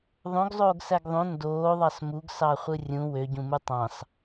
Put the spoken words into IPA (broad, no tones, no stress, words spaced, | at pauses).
ðˤõɡzˤoːɡsæɡ ðˤõ ndoːðˤɑs muɡsɑχʷɯ rʲũ wøɟũmu tˤɑ̃s